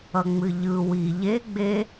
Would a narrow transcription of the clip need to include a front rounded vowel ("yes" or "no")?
no